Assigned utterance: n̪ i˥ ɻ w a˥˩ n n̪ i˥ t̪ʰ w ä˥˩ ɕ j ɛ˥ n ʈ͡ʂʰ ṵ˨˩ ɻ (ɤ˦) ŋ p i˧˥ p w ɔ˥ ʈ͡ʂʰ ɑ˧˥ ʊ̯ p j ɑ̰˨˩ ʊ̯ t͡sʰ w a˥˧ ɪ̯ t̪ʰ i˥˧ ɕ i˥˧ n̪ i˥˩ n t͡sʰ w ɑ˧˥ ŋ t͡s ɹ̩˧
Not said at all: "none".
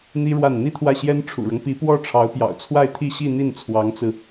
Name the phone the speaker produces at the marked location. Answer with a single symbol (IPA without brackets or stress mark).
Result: ɤ˦